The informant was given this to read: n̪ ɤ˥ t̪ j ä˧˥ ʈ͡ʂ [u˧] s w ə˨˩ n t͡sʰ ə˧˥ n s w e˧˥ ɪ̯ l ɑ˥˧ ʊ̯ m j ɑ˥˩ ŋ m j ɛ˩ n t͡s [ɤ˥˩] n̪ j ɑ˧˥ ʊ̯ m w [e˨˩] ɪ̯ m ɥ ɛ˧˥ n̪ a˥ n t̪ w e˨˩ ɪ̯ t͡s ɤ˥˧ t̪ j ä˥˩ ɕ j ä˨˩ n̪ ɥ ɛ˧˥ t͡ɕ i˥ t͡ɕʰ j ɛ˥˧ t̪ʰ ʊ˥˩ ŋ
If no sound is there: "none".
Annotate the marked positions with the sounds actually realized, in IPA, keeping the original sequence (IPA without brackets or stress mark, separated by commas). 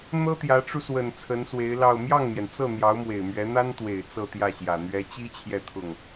u˧, ɤ˥˩, e˨˩